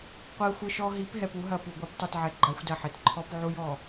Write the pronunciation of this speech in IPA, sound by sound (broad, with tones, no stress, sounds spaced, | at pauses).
qʷ ɛ˦ xʷ ɘ˦ ʃ ɔ˦ ɦ i˨˦ p ɦ ɛ˨ p u˦ ɦ ɐ˨ p u˨ ɡʷ i˨˦ p tˤ ɨ˨ t ʕ ɛ˨ ɡ͡ǃ a˦ xʷ d ɐ˦˨ ħ ɘ˨ t ǃʰ ɔ˦ p ʕ u˦ j ɔ˨